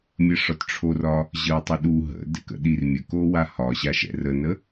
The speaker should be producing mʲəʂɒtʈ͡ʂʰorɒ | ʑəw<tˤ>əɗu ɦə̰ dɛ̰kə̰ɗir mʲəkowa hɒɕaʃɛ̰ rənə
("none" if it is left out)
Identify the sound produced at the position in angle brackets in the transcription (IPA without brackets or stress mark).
tˤ